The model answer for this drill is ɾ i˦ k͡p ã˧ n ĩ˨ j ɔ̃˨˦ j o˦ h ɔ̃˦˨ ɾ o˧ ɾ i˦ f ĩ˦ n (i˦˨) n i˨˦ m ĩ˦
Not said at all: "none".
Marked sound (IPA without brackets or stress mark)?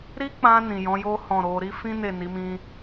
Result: e˦˨